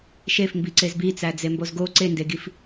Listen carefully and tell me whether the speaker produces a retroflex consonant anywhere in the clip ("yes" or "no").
no